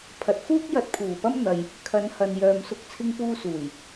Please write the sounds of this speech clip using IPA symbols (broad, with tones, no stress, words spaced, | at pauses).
pʰɐ˨t̚fuː˥k̚ jɐ˧t̚pʰuː˨˩pɐ˥mn̪ɐ˨j | kʰɐ˨˧nhɐ˨n jœː˨msʊ˧k̚ t͡sʰɪ˧ŋpuː˧ suː˨˩j